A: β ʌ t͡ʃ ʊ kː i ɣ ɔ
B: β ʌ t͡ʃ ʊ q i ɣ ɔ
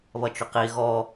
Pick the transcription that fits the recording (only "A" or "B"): B